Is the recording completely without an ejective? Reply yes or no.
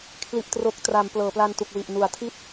yes